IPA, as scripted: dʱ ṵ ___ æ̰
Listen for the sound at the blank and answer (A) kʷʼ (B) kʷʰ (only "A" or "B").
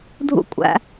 A